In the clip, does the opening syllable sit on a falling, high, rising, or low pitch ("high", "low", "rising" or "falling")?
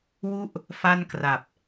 falling